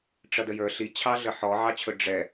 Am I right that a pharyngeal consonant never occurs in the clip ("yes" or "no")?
no